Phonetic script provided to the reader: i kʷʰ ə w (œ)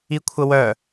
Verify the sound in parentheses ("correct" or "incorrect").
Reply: correct